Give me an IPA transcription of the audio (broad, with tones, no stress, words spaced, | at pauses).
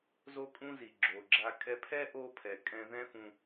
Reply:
zo˧kʼũ˧ zi˩ɡ͡ǁo˩ɡ͡ǁa˧ kʼɛ˧pʰɛ˥ ʔo˥ pʰɛ˩kʼɛ̃˧ ðɛ̃˥fũ˧